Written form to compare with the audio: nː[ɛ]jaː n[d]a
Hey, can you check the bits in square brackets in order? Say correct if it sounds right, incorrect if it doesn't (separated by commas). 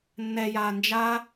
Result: correct, incorrect